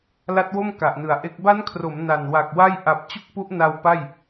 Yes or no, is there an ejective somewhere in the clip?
no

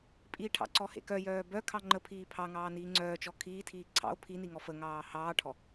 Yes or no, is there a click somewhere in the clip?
yes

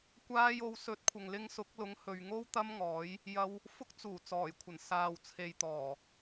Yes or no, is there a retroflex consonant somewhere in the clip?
no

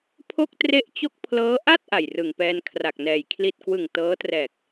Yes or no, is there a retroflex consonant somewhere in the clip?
no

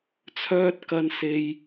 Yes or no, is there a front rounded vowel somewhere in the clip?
yes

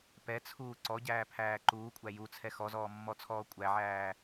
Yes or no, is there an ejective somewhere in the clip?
yes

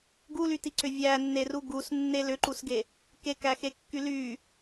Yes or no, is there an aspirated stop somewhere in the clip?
no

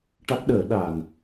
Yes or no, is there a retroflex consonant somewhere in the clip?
yes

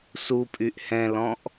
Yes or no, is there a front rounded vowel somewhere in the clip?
yes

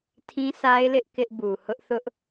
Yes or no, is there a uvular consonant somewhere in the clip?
no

